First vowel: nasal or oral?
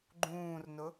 nasal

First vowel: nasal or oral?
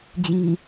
nasal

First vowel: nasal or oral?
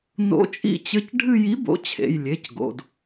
oral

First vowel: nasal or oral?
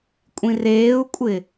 nasal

